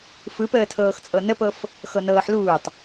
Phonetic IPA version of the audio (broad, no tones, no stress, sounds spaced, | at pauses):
f ɯ p əː tʰ ɤː x t͡sʼ ɤ n ə p ɤ f | x ɤ n ɤː ħ l uː tˤ